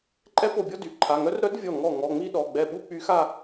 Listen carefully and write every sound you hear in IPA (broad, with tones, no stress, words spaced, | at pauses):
ǃʼɛ˧˥ po˧˩bʲɔ˥˧ dy˩˧˩ǃʰa˩˧˩ŋœ˧˥r ɾœ˧˥d vʲɔ˧˩ŋɔ˧˩ ŋɔ˩˧˩ŋ͡mi˥˧ɗɔ˩˧˩ ɡ͡bɛ˧˩ɓu˥˧k͡py˧˥xa˥˧